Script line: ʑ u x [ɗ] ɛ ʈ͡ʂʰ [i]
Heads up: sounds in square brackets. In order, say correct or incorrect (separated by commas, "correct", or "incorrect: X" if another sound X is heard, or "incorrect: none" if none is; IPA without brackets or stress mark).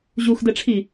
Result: incorrect: d, correct